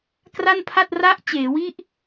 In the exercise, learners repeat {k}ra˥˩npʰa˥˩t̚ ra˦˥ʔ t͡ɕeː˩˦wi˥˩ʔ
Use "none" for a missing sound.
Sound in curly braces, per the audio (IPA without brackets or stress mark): k